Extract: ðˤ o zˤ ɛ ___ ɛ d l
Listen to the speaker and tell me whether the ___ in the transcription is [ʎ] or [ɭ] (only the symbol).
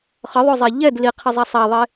ʎ